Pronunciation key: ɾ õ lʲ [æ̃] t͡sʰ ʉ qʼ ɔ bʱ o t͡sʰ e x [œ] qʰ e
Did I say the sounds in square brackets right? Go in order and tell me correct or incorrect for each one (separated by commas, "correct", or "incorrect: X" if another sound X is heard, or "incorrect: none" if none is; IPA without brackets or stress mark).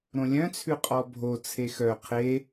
incorrect: œ̃, correct